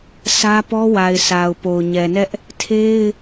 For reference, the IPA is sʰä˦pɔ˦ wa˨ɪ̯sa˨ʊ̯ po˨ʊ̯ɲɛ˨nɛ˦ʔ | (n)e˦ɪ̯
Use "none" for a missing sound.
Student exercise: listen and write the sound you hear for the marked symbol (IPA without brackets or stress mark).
tʰ